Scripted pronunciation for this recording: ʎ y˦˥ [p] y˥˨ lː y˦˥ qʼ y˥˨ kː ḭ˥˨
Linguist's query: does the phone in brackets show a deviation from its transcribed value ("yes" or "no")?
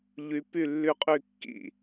no